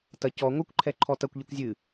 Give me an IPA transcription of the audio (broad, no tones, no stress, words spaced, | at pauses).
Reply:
tɐ cɔ ŋʷɨkʷǃʰɛǃʰɔ tɐkʷʎɨkʷ zʲɨ